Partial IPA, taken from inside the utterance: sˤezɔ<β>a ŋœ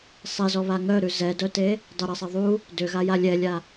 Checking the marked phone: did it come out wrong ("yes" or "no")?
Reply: no